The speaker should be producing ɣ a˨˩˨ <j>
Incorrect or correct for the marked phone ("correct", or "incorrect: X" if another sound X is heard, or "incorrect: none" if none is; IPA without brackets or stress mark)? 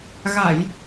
correct